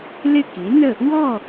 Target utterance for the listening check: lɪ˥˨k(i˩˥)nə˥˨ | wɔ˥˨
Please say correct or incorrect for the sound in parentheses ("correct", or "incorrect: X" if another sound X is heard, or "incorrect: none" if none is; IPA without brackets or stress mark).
correct